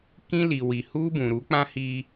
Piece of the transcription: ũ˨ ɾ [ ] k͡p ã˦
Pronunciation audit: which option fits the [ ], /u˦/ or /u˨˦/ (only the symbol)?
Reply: u˨˦